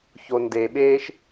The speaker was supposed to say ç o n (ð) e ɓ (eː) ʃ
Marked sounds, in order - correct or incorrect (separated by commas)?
incorrect, correct